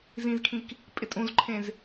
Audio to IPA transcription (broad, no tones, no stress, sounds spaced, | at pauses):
z ĩ z kʰ ĩ k | pʼ ɪ tʼ ũ z ǃʰ ẽ z